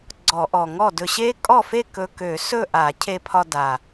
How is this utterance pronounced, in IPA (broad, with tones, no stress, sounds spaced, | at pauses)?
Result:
ɡ͡ǀ ɔ˧˩˧ ʔ ɔ˨˩ ŋ ɔ˥˩ d ɵ˧ ɕ e˦˥ kʼ ɔ˥˩ f e˥˩ k ɵ˧ k ø˧˩˧ s ɵ˥˩ ʔ a˧˩˧ cʰ e˧ pʰ ɒ˧ d a˨˩